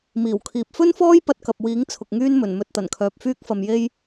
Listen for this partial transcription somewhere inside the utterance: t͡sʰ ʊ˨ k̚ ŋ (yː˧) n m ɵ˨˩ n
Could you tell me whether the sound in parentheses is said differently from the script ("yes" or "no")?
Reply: yes